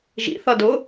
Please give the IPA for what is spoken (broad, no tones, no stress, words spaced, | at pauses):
ʒḭ θʌdʊ